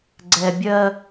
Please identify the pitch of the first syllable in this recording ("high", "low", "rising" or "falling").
low